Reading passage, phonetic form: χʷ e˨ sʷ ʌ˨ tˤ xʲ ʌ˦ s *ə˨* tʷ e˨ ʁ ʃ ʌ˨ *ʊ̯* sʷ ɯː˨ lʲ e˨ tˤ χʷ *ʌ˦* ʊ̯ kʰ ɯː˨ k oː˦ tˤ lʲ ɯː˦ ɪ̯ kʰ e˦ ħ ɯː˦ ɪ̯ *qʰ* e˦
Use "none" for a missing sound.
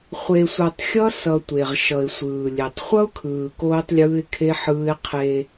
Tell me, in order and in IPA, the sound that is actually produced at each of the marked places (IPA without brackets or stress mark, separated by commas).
ʌ˨, ɪ̯, ʌ˦, qʰ